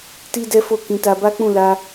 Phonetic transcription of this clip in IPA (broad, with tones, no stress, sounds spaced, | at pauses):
t i˦ d ɛ˦ f o˦˨ k ĩ˨˦ t a˧ b a˦ k͡p ũ˦˨ l a˧